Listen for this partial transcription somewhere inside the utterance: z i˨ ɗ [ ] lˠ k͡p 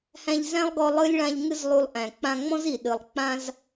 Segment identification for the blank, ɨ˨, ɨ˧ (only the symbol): ɨ˨